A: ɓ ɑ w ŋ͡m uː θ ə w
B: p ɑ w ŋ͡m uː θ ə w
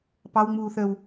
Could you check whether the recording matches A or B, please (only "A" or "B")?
B